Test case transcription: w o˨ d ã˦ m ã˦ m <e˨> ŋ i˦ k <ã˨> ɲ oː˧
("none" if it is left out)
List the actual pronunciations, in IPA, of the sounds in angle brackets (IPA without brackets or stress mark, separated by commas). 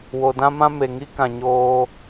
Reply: e˨, ã˨